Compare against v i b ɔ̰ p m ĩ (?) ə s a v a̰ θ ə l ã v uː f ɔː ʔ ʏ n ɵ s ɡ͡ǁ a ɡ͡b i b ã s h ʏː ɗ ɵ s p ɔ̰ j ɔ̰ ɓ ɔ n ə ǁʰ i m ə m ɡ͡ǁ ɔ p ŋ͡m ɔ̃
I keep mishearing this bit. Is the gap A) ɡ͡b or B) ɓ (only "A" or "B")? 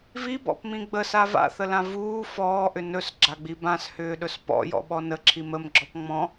A